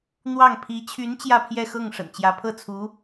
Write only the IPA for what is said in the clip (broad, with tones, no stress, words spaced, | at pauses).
n̪wɑ˥˩ŋ pʰi˧˥t͡ɕʰy˧˥n t͡ɕjä˥˧pʰjɛ˥˧xɤ˥˩ŋ ʂə̰˨˩nt͡ɕjä˧˥ pʰɤ˥˩t͡sʰu˧˥